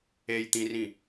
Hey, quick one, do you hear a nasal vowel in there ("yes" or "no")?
yes